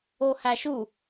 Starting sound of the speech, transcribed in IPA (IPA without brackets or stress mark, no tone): o